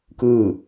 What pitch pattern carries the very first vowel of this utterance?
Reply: falling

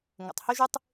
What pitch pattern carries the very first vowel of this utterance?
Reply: low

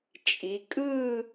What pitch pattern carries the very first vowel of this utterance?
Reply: rising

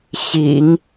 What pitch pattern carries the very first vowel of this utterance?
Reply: low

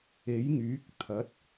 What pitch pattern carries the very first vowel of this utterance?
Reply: rising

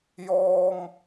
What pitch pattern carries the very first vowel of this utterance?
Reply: high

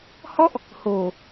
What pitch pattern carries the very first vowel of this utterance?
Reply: falling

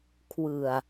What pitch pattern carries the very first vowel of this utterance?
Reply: low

